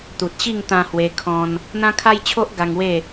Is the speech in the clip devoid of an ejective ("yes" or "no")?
yes